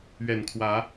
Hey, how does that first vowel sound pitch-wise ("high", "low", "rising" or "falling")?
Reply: low